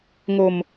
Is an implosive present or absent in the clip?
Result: absent